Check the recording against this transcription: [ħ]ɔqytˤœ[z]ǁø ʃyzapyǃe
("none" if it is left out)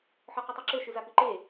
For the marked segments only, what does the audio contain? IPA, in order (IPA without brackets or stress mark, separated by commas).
ħ, none